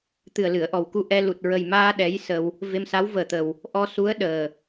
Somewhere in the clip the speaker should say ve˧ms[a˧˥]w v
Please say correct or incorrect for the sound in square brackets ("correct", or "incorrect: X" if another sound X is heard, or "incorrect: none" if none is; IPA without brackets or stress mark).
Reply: correct